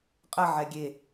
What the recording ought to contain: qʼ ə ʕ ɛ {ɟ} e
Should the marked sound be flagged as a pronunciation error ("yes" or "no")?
yes